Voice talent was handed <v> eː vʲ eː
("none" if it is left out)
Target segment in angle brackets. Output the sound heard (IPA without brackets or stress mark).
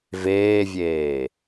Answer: v